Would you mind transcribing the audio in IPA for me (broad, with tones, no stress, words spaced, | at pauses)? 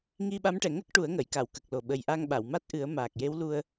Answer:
ŋi˧ɓa˧˥mʈɛ˨˩˨ŋə˦˥k̚ ʈu˨˩˦ə̯ŋə˨˩˨jka˨˩˨w kə˨˩k̚lo˨˩ ɓə˨˩jʔa˧ŋɓa˨˩˨w ma˦˥t̚ʔɨ˨˩˦ə̯ maː˨˩k̚je˧˥wlu˧ə̯